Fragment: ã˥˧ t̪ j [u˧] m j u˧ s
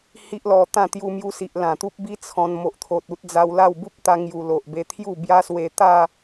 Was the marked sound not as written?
no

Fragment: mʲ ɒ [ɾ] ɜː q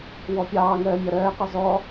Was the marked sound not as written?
no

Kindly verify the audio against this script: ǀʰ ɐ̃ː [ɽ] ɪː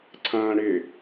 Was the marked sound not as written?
no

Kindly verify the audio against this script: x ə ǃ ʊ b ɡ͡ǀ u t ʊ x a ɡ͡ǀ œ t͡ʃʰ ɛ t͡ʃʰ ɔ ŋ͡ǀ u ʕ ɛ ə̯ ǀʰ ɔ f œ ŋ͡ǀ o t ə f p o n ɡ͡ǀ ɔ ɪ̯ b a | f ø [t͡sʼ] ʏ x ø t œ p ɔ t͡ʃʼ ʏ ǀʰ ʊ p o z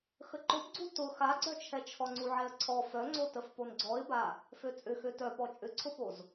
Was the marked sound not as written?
no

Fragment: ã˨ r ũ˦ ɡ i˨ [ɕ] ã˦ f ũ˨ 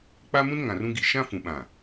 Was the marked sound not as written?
yes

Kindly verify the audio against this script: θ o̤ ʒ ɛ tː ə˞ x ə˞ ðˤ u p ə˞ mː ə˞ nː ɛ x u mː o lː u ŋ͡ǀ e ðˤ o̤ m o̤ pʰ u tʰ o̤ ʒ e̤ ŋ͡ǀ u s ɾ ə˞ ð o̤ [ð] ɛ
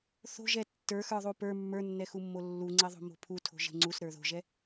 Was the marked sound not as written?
yes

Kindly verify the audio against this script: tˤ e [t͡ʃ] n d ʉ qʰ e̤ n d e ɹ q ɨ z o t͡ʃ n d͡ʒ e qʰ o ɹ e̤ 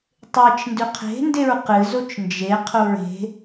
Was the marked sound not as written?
no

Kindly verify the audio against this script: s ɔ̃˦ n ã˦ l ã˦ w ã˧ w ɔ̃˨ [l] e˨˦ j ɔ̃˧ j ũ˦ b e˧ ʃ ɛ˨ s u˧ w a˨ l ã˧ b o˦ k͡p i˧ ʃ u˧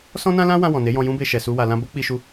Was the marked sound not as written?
yes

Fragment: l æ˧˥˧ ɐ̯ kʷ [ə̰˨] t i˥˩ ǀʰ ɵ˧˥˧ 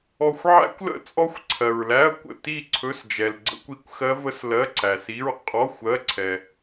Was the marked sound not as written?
yes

